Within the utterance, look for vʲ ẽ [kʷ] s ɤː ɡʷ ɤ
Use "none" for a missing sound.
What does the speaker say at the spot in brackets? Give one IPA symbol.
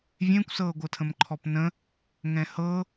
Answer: kʷ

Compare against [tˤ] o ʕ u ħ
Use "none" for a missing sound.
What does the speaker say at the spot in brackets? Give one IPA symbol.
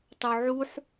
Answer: tˤ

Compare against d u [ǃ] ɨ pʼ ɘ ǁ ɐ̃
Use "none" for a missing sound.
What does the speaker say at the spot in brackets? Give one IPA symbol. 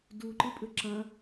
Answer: ǃ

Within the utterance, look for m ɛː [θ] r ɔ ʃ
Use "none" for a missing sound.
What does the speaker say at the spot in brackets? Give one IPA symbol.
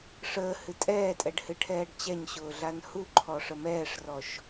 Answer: ʂ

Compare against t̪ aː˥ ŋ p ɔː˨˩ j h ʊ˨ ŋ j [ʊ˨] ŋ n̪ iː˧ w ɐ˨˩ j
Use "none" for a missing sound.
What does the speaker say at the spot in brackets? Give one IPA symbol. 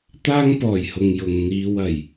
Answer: ʊ˨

